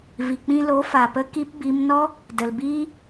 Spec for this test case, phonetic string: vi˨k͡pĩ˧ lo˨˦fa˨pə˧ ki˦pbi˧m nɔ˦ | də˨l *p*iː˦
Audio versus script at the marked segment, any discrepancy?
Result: yes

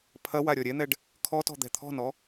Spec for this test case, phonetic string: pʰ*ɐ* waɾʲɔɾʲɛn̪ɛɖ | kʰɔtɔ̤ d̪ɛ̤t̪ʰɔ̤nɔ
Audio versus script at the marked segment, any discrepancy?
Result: no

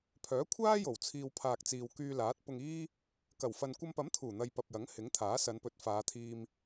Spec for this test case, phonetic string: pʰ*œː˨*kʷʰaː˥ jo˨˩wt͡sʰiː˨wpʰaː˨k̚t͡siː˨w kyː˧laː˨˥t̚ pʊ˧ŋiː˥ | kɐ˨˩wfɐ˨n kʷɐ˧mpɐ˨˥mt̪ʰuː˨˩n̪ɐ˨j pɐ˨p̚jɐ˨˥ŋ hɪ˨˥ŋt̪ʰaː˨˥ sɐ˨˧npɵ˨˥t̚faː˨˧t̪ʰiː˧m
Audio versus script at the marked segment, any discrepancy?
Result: yes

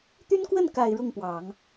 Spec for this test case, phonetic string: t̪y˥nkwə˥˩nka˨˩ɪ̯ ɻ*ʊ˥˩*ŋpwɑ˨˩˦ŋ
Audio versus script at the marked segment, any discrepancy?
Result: no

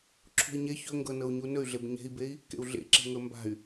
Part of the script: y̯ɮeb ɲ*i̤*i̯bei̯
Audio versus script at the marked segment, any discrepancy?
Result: yes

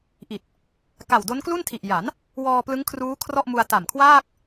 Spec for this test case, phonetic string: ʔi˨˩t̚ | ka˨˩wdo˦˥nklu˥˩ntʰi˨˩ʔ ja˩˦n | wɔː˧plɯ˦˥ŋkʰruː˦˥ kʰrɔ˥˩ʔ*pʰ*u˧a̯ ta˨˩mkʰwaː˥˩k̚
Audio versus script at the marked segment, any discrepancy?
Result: yes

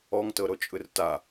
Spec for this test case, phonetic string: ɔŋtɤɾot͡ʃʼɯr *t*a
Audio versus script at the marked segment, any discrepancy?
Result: no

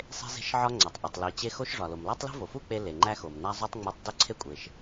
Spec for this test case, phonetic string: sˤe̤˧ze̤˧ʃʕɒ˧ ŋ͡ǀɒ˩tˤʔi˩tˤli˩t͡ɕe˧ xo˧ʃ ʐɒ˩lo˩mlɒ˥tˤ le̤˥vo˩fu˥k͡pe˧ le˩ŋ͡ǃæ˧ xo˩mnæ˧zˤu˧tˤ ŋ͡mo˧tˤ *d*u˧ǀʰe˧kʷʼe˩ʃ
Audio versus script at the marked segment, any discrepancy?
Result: no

